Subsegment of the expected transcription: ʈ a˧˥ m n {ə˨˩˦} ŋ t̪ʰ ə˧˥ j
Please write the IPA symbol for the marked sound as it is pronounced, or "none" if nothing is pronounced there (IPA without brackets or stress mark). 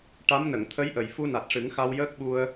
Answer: ə˨˩˨